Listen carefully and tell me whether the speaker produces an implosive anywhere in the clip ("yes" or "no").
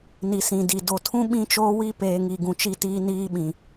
yes